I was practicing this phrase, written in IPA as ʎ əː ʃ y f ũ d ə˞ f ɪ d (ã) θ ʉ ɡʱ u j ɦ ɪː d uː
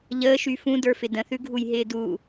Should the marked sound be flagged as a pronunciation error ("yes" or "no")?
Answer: yes